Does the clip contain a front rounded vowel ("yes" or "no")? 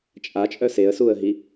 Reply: yes